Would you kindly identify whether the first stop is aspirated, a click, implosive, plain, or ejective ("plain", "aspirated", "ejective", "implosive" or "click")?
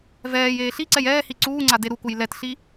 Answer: click